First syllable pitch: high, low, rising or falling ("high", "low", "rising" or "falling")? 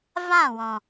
falling